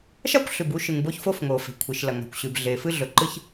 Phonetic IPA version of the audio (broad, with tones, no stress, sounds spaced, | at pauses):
ʃ a˥ kʷ ɬ ʉ˩ b u˥ ʃ ɨ˩ ŋ b o˥ ç f o˥ f ŋ o˩ f e̤˩ kʷʰ i˩ ʃ l ɐ˩ ŋ a̤˩ kʷ ɕ ʉ˩ b ɮ e˩ f ɨ˥ ɮ ɵ˩ ǃ ɨ˥ ç